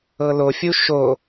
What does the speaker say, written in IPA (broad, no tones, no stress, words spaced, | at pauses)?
ɤlofʲu ʃo